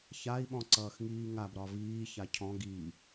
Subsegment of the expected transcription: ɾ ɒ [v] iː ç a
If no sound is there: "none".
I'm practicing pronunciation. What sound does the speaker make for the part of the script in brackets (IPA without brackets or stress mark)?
v